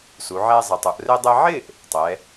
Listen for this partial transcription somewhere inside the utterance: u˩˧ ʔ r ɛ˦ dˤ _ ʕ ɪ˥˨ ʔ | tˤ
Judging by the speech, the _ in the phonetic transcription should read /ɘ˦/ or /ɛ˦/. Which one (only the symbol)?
ɛ˦